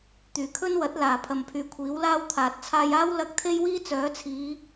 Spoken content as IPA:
t̪ yː˨˩ kʰ ɵ˥ n w ɐ˨˥ t̚ l aː˨˩ pʰ ɐ˨ m pʰ yː˨ kʷʰ iː˨˥ w l aː˥ w t̪ʰ aː˨ t̚ t͡sʰ aː˧ j aː˥ w l ɐ˥ k̚ t̪ʰ e˥ j w iː˥ t͡s œː˨˥ t͡sʰ iː˨˧

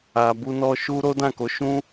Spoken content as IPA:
a˨ b u˧ n ɔ˧ ʃ u˦ ɾ o˦ d ã˦˨ k o˨˦ ʃ ũ˦

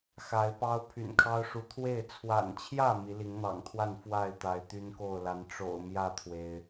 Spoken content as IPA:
x a˨˦ ɪ̯ p ɑ˦ ʊ̯ pʰ y̰˨˩ n kʰ ɑ˦ ʊ̯ ʂ u˨˦ t̪ʰ w e˥˨ ɪ̯ t͡sʰ w a̰˨˩ n t͡ɕʰ j ä˥˨ m i˨˦ l i˨˦ ŋ n̪ ɑ̰˨˩ ŋ t̪ʰ w a˥˨ n f w a˥˨ ɪ̯ t̪ a˨˦ ɪ̯ t̪ y˦ n k o˥˨ ʊ̯ l a˨˦ n ʈ͡ʂ o̰˨˩ ʊ̯ m j ä˥˨ t̪ʰ w e˩ ɪ̯

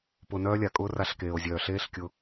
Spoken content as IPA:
p ʊ˧ n œː˦ lʲ a˨ kʼ ʊː˦ r a˧ ɬ k eː˨ o̯ zʲ œː˨ ɬ eː˦ ɬ kʲ ʊ˧

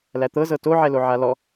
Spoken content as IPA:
l æ t̪ ɤ z ɤ t o ʕ ɛ l o ʕ a l ɔ

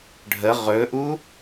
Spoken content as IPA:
ɖʱ ə ʁ ɵ ʔ u

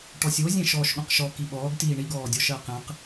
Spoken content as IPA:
ʈ ɔ sʲ o zʲ ɛ̃ ʃ ɔː ʃ ɠ õ q ʃ ɔ k i ɓ ɔː ɡ t iː ɳ i ɡ ɔː dʲ ɔ ʃ ɜ q ɛ̃ q

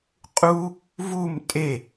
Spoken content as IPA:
qʼ u | v u m tʼ e

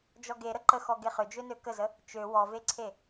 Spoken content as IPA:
d͡ʒ ɔ ɡ e ɾ ə ǃ ə x ɔ ɡ e χ ʏ d͡ʒ ø n ø k ə z ə | t͡ʃ ø w ɔ v e ǀʰ e

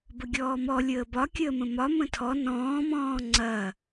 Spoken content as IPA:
b ə ɡʲ ɔː m ɔ lʲ əː b ɒ kʲ əː m ə̃ m ɒ m ə̃ tʰ ɔ n ɔ̃ː m ɔ̃ː ŋ͡ǀ ɐː

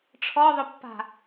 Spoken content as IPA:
ʈ͡ʂʰ ɔ ðˤ ɵ pː a̤

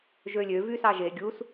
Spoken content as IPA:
ʒ ø lʲ ø v y s ɑ ʒ e ɡʲ u s

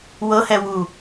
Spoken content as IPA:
w ɤ h ɛ w u

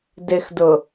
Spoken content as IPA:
d ɪ x d ʊ

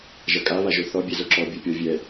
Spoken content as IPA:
ʒ ɐ kʼ a β a ʒ o θ ɔ bʲ ɛ z o ǁ ɔ bʲ o pʲ ɔ vʲ ɛ

